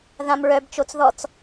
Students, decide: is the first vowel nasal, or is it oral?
nasal